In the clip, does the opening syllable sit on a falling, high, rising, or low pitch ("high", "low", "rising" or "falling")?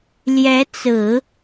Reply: rising